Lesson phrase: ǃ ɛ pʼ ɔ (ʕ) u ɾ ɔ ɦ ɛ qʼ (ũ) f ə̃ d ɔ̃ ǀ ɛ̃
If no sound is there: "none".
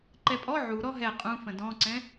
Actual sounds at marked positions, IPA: ʕ, ũ

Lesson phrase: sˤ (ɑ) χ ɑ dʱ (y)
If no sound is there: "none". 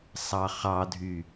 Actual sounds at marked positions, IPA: ɑ, y

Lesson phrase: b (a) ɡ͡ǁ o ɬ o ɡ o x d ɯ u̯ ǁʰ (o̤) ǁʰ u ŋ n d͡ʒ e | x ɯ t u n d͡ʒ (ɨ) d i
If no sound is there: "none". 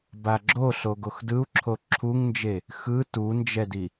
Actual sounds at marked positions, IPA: a, o, ɛ

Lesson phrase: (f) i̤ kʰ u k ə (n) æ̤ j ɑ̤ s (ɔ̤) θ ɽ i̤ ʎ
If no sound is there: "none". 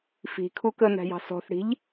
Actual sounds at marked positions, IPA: f, n, ɔ̤

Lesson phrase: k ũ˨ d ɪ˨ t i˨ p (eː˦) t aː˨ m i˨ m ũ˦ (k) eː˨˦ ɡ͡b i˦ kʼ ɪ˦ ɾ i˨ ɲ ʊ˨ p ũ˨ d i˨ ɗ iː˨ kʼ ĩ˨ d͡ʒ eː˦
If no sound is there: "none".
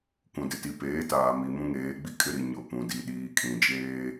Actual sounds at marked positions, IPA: eː˨˦, ŋ

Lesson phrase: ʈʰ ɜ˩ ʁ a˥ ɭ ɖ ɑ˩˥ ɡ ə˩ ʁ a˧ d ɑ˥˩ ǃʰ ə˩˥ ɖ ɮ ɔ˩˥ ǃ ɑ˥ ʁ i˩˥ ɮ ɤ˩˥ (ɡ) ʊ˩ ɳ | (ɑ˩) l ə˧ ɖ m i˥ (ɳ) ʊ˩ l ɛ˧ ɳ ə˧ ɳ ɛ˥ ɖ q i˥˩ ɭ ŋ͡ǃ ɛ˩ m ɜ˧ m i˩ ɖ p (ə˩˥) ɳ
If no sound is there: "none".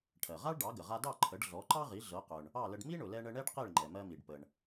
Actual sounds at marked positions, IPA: q, ɑ˥˩, ɳ, ə˩

